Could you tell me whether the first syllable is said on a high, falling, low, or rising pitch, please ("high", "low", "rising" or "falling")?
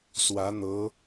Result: rising